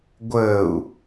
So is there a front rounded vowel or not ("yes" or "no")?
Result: no